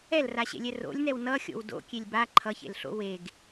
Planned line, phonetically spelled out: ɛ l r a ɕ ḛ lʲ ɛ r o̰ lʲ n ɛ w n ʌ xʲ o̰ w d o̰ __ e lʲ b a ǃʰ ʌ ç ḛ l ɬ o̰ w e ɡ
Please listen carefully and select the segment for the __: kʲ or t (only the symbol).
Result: kʲ